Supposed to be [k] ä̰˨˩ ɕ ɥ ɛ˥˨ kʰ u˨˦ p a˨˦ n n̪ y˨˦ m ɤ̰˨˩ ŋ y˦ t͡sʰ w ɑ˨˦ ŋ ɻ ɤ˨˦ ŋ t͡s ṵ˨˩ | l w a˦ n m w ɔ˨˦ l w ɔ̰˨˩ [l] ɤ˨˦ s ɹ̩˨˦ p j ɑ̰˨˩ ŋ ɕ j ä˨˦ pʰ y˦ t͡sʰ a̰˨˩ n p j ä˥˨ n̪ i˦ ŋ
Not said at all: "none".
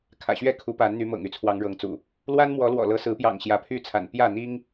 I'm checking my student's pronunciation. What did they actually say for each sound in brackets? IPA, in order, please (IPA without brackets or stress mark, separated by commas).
kʰ, l